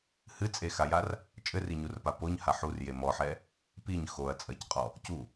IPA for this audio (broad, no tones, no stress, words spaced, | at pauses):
hɨt͡sʼexajar | t͡ʃʼɘriɲurpa poɲha ħurje mɔħɛ | piɲ xoɐ̯ t͡sʼɐcqʼɔ | cu